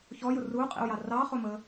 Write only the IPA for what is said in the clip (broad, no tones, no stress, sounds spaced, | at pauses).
ç ɔ j ʊ r u qʼ ḭ u̯ j ɑ r ɑ χ ʊ m ə